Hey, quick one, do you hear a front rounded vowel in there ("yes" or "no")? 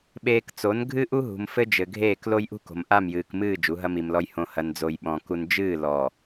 no